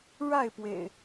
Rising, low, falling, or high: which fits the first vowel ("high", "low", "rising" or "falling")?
falling